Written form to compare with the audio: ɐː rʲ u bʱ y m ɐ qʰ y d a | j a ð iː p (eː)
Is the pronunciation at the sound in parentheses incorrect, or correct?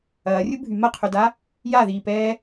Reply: incorrect